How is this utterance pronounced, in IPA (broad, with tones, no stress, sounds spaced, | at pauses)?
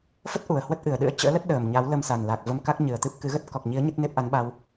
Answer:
f ə˦˥ t̚ ʔ u˨˩ ə̯ h w ə˦˥ t̚ ʔ ɨ˨˩ ə̯ ɗ ɨ̰˧˥ ə̯ t͡ɕ ə̰ː˧˥ l ə˦˥ t̚ ɗ əː˨˩ m ɲ a˨˦ w l ə˧ m s a˨˩ n l a˨˩ k̚ v ə˧ m k a˦˥ k̚ ɲ ɨ˨˩ ə̯ t̪ ɨ˦˥ p̚ k ɨ˨˦ ɣ ə˦˥ t̚ k ɔ˨˩ k̚ ɲ i˨˦ ə̯ ɲ ə˦˥ t̚ n e˦˥ p̚ ʔ a˨˦ n ɓ a˧ w